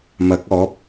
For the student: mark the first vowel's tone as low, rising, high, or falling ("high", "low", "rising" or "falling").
rising